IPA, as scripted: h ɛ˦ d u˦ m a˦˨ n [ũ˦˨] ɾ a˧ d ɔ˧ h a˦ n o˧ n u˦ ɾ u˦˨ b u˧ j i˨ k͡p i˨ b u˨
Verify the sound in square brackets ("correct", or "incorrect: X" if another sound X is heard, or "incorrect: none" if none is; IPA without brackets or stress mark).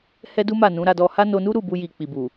incorrect: ũ˨˦